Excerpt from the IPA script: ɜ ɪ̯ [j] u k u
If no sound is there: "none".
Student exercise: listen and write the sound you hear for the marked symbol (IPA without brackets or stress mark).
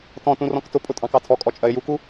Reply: j